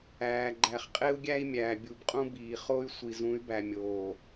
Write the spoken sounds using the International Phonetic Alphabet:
æː˨ ɡ͡ǃ æ˨ χ qʼ e˦ u̯ ɡʲ æ˦ i̯ mʲ æː˨ bʲ u˨ b qʼ ũ˦ b iː˨ χ o˦ y̯ sʷ i˨ z ũ˨˦ y̯ b æ˨ mʲ oː˨

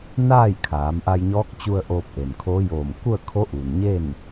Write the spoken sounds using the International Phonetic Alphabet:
n aː˥˨ j kʰ aː˩˧ m ʔ a˧ j ɲ ɔː˧˥ k̚ t͡ɕ u˧ ə̯ ʔ oː˧ p̚ ʔ e˩ n kʰ oː˧˥ j oː˧˩ m k u˥˨ ə̯ kʰ o˧˥ ʔ uː˩ n ɲ e˥˨ n

